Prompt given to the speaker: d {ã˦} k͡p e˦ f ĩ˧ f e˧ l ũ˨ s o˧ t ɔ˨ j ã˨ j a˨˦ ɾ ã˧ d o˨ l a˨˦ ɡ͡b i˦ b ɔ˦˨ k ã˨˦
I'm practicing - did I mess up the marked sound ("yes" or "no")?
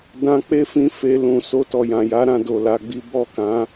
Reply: yes